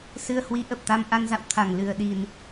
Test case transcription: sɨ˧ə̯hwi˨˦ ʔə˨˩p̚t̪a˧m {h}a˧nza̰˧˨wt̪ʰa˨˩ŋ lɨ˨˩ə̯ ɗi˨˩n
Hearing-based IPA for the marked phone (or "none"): ʔ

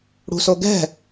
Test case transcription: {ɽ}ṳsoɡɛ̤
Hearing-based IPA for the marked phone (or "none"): ɽ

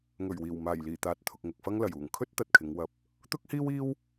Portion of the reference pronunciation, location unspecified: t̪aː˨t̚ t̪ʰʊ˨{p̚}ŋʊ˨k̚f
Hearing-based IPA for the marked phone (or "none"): k̚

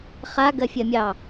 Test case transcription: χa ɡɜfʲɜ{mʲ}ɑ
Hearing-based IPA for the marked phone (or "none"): mʲ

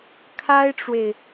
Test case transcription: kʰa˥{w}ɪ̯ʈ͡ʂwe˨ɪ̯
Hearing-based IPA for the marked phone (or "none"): none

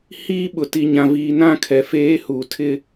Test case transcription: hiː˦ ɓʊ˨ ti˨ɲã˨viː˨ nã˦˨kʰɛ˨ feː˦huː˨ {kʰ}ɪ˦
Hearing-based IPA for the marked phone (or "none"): tʰ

